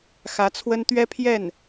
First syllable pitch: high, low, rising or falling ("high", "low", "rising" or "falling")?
rising